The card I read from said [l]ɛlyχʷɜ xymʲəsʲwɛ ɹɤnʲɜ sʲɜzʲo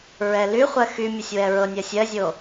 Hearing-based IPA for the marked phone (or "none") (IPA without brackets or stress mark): ɹ